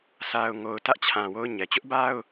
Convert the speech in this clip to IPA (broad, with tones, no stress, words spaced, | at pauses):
sʰa˨ʊ̯ŋo˨ʊ̯ tä˦ʔt͡ɕʰã˨ wo˦ʊ̯ɲɛ˨ t͡ɕʊ˦ʔba˦ʊ̯